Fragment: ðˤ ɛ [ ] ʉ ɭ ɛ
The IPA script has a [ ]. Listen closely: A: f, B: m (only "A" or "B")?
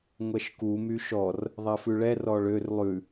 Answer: A